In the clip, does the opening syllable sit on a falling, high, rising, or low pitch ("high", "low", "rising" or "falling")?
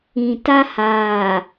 low